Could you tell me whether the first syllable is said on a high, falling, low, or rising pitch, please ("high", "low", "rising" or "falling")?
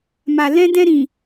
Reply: low